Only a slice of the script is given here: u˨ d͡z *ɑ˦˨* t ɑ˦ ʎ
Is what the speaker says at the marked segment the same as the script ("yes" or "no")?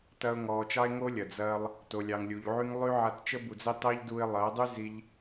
no